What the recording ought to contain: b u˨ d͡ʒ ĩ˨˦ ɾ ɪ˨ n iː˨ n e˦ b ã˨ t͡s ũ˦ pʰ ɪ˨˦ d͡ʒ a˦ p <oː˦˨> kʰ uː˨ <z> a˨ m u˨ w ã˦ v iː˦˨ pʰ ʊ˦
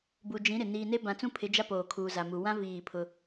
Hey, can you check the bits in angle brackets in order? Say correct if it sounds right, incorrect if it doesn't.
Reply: incorrect: oː˨, correct

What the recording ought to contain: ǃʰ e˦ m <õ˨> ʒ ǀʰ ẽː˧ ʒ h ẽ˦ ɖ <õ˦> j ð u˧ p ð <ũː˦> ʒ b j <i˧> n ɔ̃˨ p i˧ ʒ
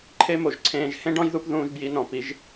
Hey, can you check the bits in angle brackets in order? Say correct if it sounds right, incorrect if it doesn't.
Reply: incorrect: o˨, incorrect: ɔ̃˦, incorrect: ũː˧, correct

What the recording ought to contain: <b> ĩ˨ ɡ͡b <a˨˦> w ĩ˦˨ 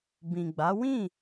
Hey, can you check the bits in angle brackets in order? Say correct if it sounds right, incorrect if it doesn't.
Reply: correct, correct

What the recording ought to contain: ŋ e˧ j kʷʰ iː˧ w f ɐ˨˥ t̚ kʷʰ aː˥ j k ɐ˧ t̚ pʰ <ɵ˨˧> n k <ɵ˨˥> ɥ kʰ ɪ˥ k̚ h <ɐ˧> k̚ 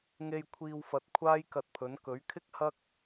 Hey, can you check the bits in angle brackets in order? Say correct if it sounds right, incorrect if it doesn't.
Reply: incorrect: ɵ˨˥, correct, incorrect: ɐ˥

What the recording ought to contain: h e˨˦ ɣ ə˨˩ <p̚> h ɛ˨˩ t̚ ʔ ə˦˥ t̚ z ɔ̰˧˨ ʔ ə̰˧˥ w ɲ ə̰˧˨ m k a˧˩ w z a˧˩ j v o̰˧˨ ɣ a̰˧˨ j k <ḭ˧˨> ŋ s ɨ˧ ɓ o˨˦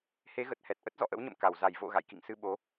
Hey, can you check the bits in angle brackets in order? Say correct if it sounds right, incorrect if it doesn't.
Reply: incorrect: t̚, correct

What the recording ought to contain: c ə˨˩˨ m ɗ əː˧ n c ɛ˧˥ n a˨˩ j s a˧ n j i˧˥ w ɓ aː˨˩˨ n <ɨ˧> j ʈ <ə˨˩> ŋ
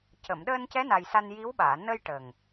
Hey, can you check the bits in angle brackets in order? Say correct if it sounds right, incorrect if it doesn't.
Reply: incorrect: ə˧, correct

